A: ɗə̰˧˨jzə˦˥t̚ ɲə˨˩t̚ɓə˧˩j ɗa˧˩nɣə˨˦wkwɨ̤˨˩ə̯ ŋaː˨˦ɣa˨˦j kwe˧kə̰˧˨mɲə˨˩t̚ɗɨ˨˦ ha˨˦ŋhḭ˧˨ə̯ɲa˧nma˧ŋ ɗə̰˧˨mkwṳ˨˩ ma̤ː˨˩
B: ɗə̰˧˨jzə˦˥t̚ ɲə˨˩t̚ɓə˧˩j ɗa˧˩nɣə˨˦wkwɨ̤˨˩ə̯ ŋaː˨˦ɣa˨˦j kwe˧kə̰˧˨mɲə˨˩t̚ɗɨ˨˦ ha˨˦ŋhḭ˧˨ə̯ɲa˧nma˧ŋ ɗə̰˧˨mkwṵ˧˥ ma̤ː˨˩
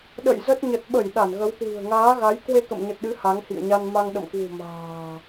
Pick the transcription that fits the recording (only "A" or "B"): A